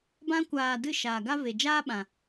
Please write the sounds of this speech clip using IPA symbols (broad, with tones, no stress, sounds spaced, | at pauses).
b ã˧ kʷ aː˨ d ɨ˦˨ ʃ aː˨ ɡ a˦ v e˨ d͡ʒ aː˦ ɓ ã˨